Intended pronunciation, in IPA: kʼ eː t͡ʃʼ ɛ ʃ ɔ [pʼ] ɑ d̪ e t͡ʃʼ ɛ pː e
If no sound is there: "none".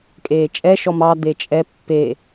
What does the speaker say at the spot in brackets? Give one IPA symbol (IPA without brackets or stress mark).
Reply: m